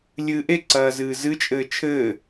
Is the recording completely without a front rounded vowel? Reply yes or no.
yes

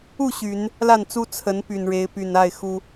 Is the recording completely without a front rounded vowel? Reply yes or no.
no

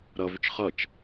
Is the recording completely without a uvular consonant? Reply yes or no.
no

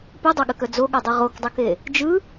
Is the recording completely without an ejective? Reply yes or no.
yes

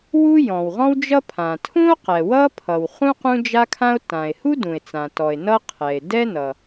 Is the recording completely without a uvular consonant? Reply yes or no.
no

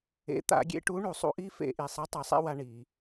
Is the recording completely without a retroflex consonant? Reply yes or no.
no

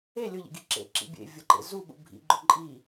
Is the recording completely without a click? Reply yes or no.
no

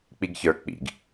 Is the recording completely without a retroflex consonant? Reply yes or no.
yes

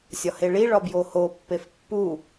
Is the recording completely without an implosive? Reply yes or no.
yes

